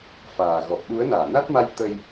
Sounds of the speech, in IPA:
f aː˨˩ ɣ ɔ˨˩ p̚ ɗ u˨˦ ə̯ n aː˧˩ n a˦˥ t̚ m a˧ j t̪ ə˧ j

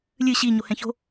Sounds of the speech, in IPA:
lʲ ɨ ɕ i ɲ o h ɛ̃ ç o̤

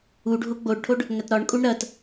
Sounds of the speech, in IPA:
u ɖʱ o ɡ͡b o ɖ ʈʰ o ɖ | ŋ ɐ t ɾ ɒ ɳ kʼ u ɳ ɾ ɐ t

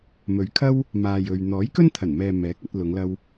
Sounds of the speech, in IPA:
m ɵ˨˧ ɥ kʰ ɐ˥ w | m aː˨ j ɵ˨ ɥ n̪ ɔː˨˥ j k ɵ˥ n t̪ʰ ɐ˨˩ n m ɛː˨ m ɛː˨˥ k̚ ɐ˧ t̚ l ʊ˨˧ ŋ l ɐ˧ w

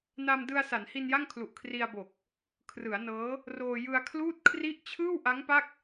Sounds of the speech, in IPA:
n a˧ m d ɯ˧ a̯ s a˩˦ n h i˧ n j a˥˩ ŋ kʰ l u˨˩ ʔ kʰ r i˧ a̯ b o˨˩ k̚ | kʰ r ɯ˩˦ a̯ n ɤː˦˥ | r oː˧ j ɯ˧ a̯ kʰ l uː˥˩ t̚ kʰ r i˥˩ ʔ t͡ɕʰ ɯː˥˩ w ʔ a˦˥ ŋ p a˥˩ k̚

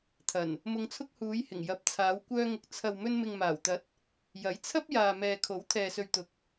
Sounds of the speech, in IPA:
t̪ʰ ɐ˨˩ n | m ʊ˧ ŋ t͡sʰ ʊ˥ k̚ h uː˨˧ j h ɪ˨˩ ŋ j ɐ˨˥ p̚ t͡sʰ aː˨˧ w kʷ œː˧ ŋ ʊ˨ k̚ t͡sʰ ɐ˨ w m ɵ˧ n m ɪ˨ ŋ m aː˨˩ w t̪ ɐ˨˥ t̚ | j ɐ˨˥ j t͡sʰ ɐ˥ p̚ j aː˨ m ɛː˨ kʰ o˨˥ w t̪ʰ ɛː˨ s ɵ˨ ɥ t̪ ʊ˨ k̚

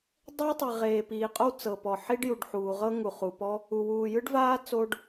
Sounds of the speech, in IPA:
dˤ ɛ˥ w tˤ i˩ ʁ eː˩ p iː˩ qʼ o˥ w t͡s ɤ˩ p ɔ˩ ħ i˥ ɖ j u˩ ɖ ħ uː˩ ʁ ɤ˥ ŋ u˩ χ u˩ p ɔ˥ | u˩ w uː˩ j ɯ˥ ɖ v aː˥ t͡s o˥ ɖ

